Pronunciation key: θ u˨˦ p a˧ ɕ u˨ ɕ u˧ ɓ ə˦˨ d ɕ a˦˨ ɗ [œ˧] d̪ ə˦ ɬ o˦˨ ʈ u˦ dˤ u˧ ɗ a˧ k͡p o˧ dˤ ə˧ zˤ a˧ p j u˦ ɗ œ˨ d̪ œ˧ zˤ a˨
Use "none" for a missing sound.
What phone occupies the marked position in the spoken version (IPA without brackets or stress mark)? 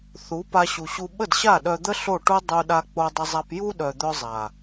œ˧